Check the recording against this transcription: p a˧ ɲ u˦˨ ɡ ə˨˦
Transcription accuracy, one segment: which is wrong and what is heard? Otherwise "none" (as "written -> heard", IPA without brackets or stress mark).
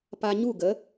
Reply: none